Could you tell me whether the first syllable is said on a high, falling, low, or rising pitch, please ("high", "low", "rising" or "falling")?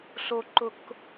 low